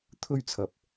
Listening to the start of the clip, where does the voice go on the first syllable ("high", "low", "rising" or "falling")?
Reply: high